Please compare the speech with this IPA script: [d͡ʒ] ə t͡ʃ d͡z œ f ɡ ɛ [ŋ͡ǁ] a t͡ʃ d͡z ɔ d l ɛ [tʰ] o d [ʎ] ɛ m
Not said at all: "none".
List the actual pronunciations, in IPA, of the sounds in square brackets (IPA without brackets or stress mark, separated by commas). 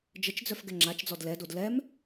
d͡ʒ, ŋ͡ǁ, d, l